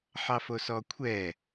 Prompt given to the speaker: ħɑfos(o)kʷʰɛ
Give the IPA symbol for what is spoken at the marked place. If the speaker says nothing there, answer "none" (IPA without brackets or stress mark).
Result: ɔ